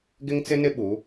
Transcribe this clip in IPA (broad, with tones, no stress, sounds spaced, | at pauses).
ɡ ɪ˦ ŋ t͡s ɪ˦ n ɪ˦ ɓ u˨˦